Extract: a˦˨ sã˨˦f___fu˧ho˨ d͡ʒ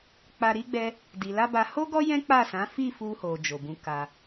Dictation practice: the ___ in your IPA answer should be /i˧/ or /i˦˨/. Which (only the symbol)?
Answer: i˦˨